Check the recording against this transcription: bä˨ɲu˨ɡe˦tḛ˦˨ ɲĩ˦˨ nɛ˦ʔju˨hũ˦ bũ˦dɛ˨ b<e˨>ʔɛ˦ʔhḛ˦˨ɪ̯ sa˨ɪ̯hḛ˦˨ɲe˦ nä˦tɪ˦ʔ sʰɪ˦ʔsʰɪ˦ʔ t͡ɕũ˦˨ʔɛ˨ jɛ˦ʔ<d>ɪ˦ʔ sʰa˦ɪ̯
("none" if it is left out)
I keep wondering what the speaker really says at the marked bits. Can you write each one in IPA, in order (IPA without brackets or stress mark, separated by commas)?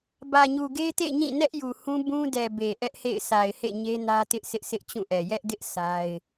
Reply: e˨, d